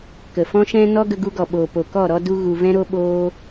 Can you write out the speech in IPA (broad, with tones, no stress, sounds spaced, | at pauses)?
k ə˨ f ɔ̃˦ ʃ ɛ̃˦ n ɔ˦ ɡ ə˧ ɡ u˧ ɡ ɔ˨ ɓ oː˨ p o˨ k ɔ˦˨ ɾ ɔ˧ d u˧ ɣ u˨ v ɛ̃˧ ɾ o˧ ɓ oː˧